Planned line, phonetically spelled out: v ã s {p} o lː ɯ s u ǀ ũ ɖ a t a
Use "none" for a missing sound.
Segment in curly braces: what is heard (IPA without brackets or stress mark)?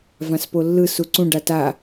p